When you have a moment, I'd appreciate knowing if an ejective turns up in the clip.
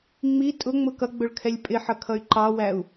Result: yes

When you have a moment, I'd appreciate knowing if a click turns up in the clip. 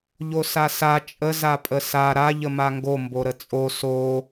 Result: no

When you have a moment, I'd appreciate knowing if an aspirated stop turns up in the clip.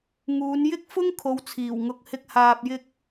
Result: yes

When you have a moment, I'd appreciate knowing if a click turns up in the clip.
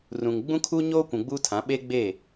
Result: no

